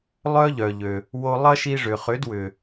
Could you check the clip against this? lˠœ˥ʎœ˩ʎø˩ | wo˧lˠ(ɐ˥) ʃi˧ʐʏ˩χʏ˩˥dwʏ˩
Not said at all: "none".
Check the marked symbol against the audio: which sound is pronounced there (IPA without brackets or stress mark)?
ɐ˥